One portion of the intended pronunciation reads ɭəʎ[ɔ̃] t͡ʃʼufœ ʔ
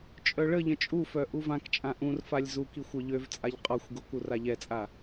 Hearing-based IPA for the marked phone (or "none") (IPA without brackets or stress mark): ə̃